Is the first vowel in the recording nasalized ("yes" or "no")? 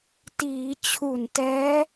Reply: no